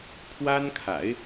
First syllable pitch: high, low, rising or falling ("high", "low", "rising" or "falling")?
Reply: high